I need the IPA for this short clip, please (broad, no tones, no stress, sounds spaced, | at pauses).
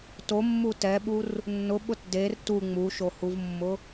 t o mː u t ɛ ɓ u r | nː ʊ ɓ ʊ t d e r t u ŋ͡m u ʃ o h u v mː ʊ